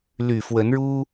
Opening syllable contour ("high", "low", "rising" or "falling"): low